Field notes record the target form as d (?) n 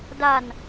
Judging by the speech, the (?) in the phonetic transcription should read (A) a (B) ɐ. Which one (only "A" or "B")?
A